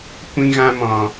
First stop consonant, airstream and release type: plain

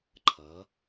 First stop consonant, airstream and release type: click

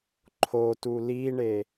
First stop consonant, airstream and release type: click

